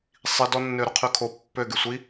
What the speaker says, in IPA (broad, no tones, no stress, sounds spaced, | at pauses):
sˤ i d ɔ nː ø ɾ ʊ qʰ y kʰ o pː ø ɡ y sʷ i